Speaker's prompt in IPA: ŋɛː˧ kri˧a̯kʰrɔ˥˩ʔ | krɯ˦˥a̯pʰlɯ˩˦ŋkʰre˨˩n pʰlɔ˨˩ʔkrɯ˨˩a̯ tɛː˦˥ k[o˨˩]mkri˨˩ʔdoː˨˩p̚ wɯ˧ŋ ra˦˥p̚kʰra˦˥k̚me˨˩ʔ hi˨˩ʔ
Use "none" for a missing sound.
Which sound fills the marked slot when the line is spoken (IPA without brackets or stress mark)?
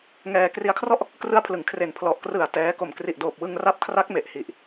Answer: o˨˩